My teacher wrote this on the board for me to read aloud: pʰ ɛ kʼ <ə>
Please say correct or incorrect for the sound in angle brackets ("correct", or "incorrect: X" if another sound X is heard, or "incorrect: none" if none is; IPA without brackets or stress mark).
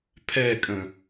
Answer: incorrect: ə̃